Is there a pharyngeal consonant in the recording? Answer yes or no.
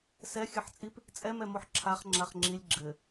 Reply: yes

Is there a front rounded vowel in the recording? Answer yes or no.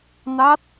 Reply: no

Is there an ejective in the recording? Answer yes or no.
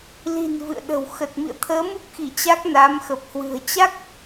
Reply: no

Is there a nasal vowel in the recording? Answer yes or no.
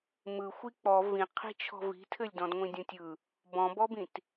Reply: yes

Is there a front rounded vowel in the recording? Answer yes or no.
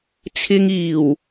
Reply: no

